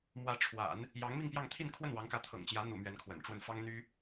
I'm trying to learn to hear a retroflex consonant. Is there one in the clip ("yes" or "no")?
yes